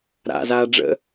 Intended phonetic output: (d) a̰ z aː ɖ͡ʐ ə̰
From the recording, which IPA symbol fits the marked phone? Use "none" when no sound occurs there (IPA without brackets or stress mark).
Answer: ɾ